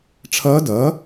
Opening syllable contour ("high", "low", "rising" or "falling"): rising